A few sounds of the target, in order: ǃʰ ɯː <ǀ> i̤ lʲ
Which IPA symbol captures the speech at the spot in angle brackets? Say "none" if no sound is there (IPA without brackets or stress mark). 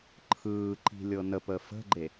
ǃ